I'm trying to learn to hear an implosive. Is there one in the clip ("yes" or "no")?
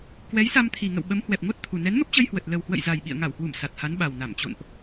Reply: yes